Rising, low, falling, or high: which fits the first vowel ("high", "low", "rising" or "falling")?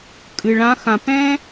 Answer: low